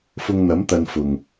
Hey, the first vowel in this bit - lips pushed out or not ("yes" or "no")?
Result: yes